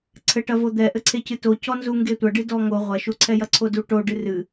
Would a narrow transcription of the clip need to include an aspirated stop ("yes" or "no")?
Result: yes